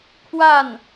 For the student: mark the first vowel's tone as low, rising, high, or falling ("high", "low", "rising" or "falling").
falling